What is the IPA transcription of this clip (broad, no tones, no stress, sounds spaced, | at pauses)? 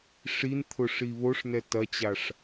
ʂ i n t̪ʰ ʊ ʂ i β o ʂ n ɛ t ɐ t͡ɕ a ʂ